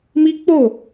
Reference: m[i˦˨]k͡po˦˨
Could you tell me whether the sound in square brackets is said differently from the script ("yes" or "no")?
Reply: yes